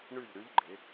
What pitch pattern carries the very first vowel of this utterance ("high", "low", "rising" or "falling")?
falling